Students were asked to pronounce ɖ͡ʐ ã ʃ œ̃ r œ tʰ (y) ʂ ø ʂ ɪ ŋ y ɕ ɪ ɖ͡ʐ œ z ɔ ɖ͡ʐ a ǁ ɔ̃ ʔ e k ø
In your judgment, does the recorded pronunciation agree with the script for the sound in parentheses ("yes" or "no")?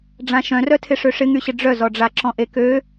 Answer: no